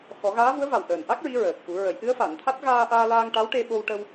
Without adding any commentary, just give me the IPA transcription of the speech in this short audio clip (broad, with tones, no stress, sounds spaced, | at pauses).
x ɔ˨˩˦ ɣ aː˧˥ v u˧˥ ə̯ v a˨˩ w ʔ əː˨˩ n ʔ a˦˥ k̚ ɹ i˧˥ ɹ əː˨˩ k̚ f u˨˩˦ ɹ ə˨˩˦ j ʔ ɨ˧˥ ə̯ f a˨˩˨ n t̪ʰ a˦˥ t̚ ɣ aː˧ ʔ aː˧ l aː˧ ŋ ʈ a˧˥ w ʈ e˧ ɓ o˧ w ʈ ə˧ w